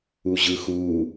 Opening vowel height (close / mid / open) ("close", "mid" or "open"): close